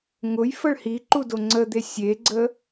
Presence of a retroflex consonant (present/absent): present